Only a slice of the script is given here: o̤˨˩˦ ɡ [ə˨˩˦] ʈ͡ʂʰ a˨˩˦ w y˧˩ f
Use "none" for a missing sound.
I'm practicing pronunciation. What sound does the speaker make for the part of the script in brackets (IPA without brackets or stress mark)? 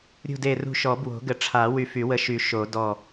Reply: ə˨˩˦